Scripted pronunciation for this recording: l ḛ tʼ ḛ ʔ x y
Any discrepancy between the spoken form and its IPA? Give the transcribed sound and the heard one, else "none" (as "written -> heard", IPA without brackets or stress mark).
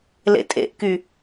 x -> k